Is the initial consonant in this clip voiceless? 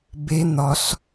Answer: no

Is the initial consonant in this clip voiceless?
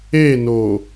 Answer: no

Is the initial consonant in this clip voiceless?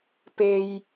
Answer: yes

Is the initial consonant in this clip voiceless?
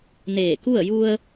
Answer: no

